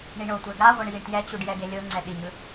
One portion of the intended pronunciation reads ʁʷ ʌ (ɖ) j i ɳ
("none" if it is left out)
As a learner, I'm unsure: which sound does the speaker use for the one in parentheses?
ɳ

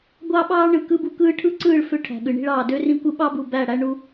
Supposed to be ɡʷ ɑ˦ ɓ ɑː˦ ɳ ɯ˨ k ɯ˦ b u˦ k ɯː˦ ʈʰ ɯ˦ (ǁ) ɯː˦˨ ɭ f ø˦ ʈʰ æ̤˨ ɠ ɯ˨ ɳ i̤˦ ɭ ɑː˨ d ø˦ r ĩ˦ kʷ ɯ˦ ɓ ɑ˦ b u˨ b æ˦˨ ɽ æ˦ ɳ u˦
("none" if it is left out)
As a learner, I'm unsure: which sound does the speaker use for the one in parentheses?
ǀ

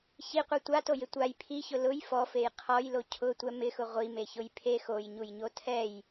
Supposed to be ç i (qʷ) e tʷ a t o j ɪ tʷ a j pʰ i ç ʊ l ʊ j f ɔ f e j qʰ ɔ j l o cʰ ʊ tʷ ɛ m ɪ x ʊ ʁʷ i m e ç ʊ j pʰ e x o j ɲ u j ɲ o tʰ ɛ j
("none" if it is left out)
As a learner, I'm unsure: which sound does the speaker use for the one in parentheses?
qʷ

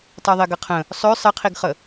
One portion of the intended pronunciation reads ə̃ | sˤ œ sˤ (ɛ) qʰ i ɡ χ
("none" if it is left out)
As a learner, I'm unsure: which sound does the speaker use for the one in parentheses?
ɘ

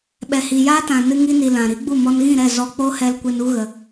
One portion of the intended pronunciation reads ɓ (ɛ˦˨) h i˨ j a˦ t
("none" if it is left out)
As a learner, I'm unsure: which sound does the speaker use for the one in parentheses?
ɛ˨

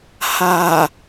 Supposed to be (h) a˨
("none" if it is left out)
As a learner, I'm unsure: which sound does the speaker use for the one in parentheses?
h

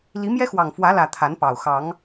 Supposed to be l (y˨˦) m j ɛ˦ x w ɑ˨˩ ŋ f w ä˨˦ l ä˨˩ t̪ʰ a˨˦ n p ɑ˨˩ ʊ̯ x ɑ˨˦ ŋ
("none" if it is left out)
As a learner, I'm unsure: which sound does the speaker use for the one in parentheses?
i˨˦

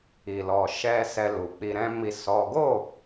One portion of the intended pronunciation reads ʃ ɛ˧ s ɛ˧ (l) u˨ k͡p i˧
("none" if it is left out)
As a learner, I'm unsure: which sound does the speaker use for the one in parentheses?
l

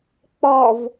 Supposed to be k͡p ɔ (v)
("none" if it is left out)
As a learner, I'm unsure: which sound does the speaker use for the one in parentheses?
v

